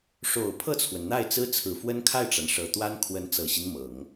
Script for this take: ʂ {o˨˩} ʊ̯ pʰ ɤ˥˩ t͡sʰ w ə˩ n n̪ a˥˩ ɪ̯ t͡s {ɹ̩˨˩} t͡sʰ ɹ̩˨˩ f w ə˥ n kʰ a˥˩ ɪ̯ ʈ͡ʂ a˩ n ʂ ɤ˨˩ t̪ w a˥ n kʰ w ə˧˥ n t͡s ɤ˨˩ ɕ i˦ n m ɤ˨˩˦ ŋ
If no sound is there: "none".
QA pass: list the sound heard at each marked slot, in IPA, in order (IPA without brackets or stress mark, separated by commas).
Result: o˨˩, ɹ̩˥